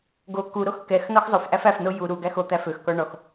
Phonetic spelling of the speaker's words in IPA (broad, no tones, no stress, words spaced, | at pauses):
ɡo kuɾox kɛx nɔxzˤofʔæf æfno ju ɾuɡæx ot̪æ føxkɔ ɳɔx